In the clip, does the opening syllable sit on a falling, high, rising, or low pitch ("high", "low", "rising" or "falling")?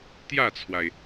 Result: falling